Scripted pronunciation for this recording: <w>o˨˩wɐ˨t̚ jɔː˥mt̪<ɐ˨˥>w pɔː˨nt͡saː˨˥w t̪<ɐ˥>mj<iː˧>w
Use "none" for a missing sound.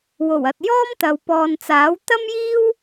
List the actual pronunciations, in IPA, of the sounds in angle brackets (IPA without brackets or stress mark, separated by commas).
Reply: w, ɐ˨, ɐ˥, iː˥